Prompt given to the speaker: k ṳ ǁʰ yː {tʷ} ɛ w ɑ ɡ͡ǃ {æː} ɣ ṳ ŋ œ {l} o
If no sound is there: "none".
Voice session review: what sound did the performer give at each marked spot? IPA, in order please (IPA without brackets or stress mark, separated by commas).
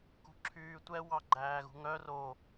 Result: tʷ, æː, r